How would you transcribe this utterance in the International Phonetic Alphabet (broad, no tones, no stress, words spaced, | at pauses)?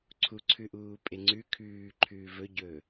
ǀʰuǀʰʉʔuː pʼeŋ͡ǀʉ kʰʉːǃʰʉː vɵɟɵː